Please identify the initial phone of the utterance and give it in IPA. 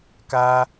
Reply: k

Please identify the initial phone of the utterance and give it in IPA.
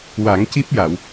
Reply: w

